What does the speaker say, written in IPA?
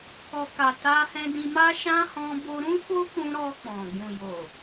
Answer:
k ɔ˧ k a˨ t a˧ h ɛ̃˧ d ĩ˧ m a˦ ʃ ã˦ h ɔ̃˦ b o˦ ɾ ũ˦ f o˦ k ũ˧ ɾ ɔ˧ k͡p ɔ̃˨ ɡ ũ˨ j o˨

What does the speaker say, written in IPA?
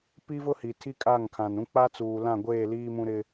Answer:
p i˦ v ʊ˦ h i˨ tʰ i˦ kʼ a˦˨ ŋ kʰ ã˨ n ũ˦ k͡p a˦ t͡s uː˨ l ã˦˨ ɡʷ eː˦˨ l iː˦ m ũ˦ ɾ ɪ˦

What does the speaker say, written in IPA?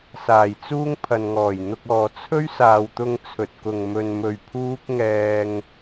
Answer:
s aː˨˩ j t͡s uː˥ ŋ pʰ ɐ˨ n ŋ ɔː˨˩ j n̪ ʊ˧ k̚ ɔː˨ t͡sʰ ɵ˥ ɥ s aː˨ w t̪ ʊ˧ ŋ t͡sʰ ɵ˨ t̚ k ʊ˨ ŋ m ɵ˨ n m ɵ˨ ɥ pʰ uː˥ k̚ ŋ ɛː˧ ŋ

